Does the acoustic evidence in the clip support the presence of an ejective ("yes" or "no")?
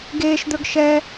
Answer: no